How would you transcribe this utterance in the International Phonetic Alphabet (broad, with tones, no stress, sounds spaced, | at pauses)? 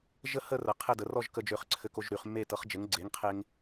ʒ ə˥˧ h ə˥˧ r ə˨˥ qʰ ɘ˥˧ d ə˨˥ r ɔ˥˧ ʒ k ə˧ d͡ʒ ø˧ χ ǀʰ ɘ˧ k o˧ ʒ ɾ y˨˥ χ mː e˥˧ t ɤ˨˥ χ d͡ʒ ɘ˨˥ ŋ ɡ͡ǀ e˨˥ ŋ qʰ e˧ ŋ